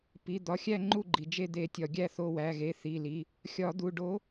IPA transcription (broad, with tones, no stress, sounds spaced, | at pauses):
p i˩˧˩ d̪ ɒ˩˧˩ xʲ æ˦˨ ŋ͡ǃ u˦˨ ɡ͡ǃ i˩ d͡ʒ e˦˨ d̪ e˨˩˦ tʲ ɒ˩ ɡʲ æ˦˨ θ o˩˧˩ w æ˩˧˩ ɣ e˩˧˩ θ i˩˧˩ l i˩˧˩ | xʲ ɒ˨˩˦ d̪ u˩˧˩ ɖ o˨˥